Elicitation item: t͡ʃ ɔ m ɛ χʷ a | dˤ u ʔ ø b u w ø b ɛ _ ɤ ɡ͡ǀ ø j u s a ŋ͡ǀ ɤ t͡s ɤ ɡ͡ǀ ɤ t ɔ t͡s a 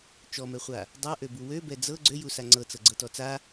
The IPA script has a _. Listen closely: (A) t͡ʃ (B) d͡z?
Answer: B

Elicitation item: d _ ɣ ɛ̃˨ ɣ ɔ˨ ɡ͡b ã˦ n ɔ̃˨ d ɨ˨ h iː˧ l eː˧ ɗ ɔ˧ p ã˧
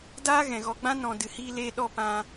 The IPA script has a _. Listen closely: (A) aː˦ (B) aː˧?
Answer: A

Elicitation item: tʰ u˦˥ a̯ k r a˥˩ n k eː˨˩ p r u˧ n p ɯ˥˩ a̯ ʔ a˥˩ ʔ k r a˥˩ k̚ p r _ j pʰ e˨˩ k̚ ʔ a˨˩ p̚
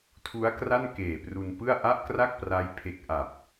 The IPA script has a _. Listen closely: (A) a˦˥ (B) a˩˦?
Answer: A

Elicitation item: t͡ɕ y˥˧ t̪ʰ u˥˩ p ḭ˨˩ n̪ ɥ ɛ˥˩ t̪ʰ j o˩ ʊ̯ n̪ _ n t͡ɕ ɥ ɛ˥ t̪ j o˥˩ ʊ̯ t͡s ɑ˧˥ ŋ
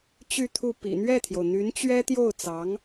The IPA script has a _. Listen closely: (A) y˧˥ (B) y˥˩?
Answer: A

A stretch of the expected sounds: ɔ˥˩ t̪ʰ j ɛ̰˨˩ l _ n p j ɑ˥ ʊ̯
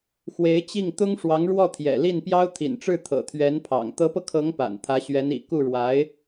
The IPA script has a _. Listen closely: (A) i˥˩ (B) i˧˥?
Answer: A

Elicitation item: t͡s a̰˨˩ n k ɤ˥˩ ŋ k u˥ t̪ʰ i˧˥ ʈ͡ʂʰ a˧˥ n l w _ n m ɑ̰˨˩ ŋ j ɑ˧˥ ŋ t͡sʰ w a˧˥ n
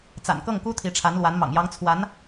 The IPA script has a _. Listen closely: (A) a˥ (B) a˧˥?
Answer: B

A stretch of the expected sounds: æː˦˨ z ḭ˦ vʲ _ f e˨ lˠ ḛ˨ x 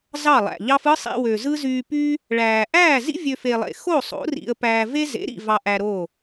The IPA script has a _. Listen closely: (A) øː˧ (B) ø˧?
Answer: B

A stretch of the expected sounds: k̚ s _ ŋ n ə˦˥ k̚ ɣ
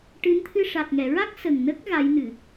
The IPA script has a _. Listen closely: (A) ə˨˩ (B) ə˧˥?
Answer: A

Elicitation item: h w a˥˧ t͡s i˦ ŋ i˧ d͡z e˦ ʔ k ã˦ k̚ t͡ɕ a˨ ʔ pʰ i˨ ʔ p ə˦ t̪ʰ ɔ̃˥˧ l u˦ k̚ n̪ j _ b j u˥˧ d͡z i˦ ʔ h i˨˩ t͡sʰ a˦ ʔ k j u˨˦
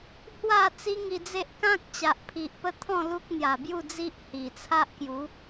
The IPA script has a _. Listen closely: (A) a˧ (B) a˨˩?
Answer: B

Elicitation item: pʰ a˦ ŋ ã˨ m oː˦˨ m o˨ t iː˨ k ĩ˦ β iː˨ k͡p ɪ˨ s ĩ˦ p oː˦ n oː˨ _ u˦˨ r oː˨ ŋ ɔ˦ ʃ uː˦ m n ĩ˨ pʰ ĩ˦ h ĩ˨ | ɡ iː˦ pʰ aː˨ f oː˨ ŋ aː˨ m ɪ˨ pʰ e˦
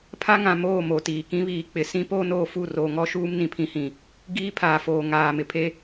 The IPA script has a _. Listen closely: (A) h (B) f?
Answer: B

